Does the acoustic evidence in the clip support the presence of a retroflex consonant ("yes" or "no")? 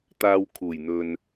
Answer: no